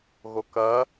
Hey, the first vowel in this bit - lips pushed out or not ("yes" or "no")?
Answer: yes